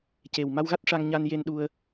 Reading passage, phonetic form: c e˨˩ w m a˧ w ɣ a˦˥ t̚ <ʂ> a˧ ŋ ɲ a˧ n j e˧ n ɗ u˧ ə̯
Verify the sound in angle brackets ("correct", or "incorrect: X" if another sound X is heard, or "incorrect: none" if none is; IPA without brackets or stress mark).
correct